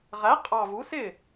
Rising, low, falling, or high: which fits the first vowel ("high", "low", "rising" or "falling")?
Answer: rising